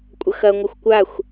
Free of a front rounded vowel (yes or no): yes